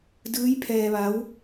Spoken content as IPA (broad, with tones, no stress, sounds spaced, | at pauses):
d ɯː˧˥ j pʰ ɛː˧ ʋ a˧˥ w